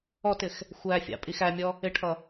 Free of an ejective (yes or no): no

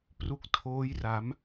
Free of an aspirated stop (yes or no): no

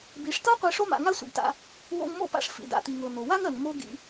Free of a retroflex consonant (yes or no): no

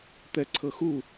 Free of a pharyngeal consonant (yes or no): yes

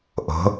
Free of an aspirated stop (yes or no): yes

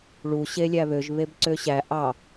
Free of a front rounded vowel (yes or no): no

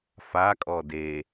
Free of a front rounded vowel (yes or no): yes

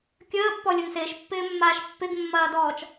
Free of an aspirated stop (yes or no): yes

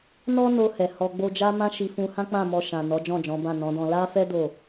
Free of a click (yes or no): yes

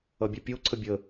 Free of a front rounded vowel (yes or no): no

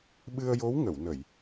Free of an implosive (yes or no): no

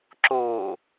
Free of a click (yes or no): no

